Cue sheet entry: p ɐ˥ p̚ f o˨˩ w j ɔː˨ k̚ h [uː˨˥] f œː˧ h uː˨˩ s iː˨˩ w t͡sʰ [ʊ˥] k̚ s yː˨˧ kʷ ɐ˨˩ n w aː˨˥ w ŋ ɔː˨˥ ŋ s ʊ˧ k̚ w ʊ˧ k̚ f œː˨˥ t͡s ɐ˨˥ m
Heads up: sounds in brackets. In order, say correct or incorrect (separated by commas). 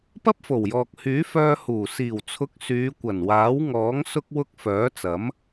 incorrect, incorrect